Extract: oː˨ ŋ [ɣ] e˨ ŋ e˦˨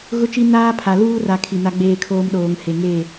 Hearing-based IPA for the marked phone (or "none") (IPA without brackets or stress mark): h